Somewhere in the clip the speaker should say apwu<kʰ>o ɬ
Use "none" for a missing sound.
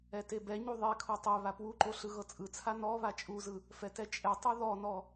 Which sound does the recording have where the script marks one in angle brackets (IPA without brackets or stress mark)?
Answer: ǃ